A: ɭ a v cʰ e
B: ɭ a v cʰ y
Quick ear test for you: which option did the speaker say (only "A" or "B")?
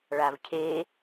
A